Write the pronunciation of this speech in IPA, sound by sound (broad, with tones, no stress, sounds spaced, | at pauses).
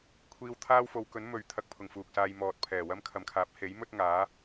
kʷʰ iː˧ w t̪ʰ aː˥ w f o˨˧ w k ɵ˨˥ n m ɵ˨ ɥ t̪ʰ ɐ˧ k̚ pʰ ʊ˨ ŋ f uː˨ k̚ s aː˧ j m ɔː˨ t̚ pʰ ɛː˨˩ w ɐ˥ m kʰ ɐ˨ m kʰ aː˨˥ p̚ h e˨˥ j m ɵ˥ t̚ ŋ aː˨˥